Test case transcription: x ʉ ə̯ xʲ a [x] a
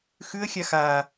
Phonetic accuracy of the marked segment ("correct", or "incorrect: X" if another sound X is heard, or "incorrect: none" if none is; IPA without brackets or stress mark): correct